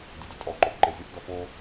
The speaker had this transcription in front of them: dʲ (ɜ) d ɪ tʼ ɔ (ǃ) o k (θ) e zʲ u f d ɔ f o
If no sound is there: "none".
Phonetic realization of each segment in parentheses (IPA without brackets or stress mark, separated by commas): ɛ, ǃ, ǃ